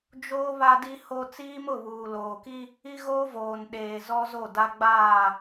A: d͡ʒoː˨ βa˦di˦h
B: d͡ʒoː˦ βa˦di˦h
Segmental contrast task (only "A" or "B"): B